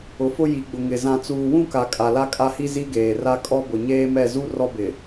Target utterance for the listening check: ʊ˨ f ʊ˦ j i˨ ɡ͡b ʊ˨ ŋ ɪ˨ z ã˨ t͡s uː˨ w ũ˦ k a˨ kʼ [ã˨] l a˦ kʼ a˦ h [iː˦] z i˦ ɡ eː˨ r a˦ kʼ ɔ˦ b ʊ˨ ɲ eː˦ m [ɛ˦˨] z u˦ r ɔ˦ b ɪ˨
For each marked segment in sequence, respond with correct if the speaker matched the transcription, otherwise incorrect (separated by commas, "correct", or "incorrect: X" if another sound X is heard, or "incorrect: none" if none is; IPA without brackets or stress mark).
incorrect: a˨, incorrect: i˦, correct